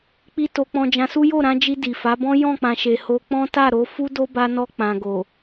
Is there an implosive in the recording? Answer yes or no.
no